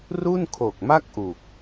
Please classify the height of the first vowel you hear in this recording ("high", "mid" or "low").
high